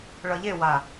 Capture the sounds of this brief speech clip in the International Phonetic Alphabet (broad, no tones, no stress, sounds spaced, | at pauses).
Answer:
ɭ ʌ ʎ e w a